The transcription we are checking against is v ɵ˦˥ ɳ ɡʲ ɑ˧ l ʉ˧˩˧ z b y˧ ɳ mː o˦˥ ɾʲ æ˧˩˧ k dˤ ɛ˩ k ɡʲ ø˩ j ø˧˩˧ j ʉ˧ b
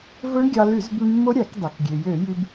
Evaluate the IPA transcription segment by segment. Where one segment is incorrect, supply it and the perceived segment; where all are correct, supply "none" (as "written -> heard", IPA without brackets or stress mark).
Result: none